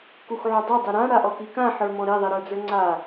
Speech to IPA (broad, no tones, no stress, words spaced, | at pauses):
kuxʕudˤi dˤiɾã ɽaʔɔkikã ħə˞mɔ̃ɾi ðˤiɾə˞d͡zə˞ŋ͡ǀa